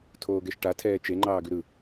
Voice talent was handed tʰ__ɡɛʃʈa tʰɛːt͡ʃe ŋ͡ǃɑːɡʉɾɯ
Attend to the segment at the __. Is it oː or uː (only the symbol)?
oː